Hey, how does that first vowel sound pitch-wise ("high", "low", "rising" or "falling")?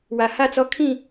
low